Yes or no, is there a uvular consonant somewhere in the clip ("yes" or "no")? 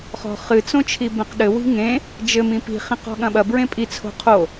yes